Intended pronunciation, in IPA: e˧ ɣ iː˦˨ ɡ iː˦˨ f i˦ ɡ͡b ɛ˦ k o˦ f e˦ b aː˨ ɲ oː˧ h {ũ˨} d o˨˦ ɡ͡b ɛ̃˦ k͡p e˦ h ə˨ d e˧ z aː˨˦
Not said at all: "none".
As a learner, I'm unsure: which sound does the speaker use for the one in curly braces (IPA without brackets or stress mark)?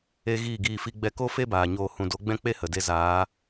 ũ˨